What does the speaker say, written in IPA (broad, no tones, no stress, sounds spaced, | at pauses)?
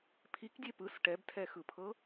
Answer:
pʰ i k dʲ e p ɯ s ʈ ɛ b tʰ ɛ x ɯ pʰ ɤ